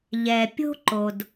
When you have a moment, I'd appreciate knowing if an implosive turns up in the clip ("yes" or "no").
no